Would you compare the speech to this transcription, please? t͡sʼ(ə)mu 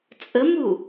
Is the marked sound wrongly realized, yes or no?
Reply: no